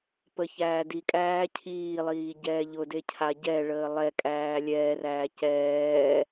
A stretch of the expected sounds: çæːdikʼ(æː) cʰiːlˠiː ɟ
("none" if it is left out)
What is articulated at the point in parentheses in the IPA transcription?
æː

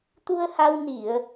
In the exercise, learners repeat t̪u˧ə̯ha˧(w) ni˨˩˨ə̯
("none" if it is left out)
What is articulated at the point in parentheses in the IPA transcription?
w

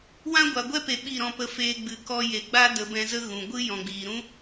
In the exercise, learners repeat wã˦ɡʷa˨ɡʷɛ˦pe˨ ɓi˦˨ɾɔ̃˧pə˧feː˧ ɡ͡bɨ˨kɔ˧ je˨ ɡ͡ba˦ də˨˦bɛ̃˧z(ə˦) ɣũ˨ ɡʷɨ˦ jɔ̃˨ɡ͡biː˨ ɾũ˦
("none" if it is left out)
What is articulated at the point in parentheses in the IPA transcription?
ə˦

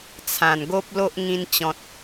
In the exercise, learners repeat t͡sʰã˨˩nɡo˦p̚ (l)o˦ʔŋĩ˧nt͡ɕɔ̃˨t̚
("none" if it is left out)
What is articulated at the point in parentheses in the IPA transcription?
l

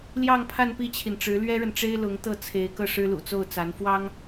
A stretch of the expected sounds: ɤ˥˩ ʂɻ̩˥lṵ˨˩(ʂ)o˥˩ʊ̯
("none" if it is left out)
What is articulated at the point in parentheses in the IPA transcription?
t͡s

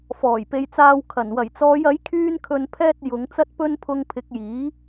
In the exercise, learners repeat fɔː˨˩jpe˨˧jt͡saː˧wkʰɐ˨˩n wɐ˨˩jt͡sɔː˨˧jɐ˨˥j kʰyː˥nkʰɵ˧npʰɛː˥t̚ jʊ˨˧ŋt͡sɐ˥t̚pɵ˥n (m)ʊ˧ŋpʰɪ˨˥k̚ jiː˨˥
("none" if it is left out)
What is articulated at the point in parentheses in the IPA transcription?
pʰ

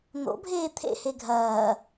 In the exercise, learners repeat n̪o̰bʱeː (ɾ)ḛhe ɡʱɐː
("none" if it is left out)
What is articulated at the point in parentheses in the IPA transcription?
t̪ʰ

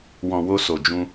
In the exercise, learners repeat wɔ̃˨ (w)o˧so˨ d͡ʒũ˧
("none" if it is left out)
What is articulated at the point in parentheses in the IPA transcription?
w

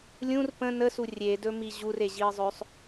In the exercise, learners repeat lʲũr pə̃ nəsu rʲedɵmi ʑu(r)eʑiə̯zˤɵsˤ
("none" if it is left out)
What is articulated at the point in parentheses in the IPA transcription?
r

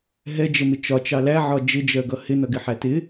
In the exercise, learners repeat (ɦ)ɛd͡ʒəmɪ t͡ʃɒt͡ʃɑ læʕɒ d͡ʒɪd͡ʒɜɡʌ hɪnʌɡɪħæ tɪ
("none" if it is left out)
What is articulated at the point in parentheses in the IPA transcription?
ɦ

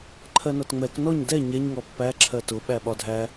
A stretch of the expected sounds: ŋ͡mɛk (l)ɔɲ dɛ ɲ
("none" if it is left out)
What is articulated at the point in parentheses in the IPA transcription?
n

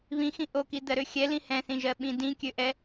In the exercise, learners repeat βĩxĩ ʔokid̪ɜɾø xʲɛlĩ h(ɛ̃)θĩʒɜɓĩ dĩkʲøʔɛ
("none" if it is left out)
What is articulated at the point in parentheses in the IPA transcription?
ɛ̃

